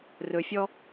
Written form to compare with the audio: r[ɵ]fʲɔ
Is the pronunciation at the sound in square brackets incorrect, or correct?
correct